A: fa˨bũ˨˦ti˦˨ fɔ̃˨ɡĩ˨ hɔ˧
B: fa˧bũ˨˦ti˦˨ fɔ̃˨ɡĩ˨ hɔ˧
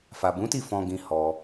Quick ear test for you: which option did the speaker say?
A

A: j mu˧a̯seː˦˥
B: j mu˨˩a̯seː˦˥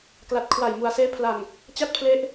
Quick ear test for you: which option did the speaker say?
B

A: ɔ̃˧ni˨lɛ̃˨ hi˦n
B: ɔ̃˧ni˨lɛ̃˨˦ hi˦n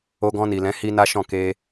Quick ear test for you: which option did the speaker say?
B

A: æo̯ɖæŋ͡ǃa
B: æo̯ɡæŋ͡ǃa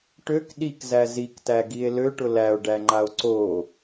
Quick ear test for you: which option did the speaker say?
A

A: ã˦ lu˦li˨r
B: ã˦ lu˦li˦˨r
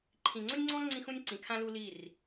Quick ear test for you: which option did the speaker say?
B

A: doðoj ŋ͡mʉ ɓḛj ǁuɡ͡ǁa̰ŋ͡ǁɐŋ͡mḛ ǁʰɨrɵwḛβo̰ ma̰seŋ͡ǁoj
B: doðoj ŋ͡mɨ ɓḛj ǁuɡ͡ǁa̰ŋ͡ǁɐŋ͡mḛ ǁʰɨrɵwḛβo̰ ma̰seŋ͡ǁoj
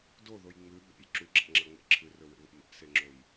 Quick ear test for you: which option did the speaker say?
A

